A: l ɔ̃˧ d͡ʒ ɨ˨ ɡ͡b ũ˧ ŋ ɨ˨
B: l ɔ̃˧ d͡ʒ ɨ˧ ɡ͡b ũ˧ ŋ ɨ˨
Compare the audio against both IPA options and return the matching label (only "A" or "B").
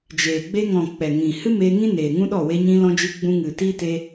B